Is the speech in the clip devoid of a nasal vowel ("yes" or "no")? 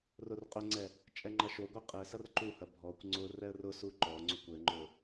yes